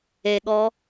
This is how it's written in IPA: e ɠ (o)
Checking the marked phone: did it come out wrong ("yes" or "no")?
yes